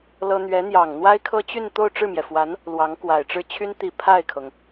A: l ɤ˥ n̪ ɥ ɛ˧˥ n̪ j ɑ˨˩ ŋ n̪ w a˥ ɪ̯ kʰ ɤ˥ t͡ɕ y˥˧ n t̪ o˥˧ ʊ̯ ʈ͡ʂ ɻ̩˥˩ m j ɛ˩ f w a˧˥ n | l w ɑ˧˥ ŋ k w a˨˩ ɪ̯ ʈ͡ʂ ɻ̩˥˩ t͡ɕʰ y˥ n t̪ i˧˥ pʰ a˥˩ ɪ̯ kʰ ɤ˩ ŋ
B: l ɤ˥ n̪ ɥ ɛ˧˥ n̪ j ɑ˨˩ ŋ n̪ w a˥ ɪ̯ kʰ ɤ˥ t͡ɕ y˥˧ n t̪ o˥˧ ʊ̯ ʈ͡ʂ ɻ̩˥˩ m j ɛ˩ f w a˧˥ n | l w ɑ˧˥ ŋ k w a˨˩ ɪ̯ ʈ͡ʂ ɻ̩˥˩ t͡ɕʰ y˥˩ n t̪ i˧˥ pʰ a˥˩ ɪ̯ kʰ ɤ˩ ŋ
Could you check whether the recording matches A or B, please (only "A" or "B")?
A